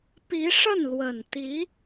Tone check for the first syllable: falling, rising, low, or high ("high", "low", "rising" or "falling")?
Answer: rising